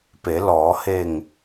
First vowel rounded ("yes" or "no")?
no